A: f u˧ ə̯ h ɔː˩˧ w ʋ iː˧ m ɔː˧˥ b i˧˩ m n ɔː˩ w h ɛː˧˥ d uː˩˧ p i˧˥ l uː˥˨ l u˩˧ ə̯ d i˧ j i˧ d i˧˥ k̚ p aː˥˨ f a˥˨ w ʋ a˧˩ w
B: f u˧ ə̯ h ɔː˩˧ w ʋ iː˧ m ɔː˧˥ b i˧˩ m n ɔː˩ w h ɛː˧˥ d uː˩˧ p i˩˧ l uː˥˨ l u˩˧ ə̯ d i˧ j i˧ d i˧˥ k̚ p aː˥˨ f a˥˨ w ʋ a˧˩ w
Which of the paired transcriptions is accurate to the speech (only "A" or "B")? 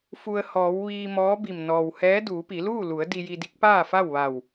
B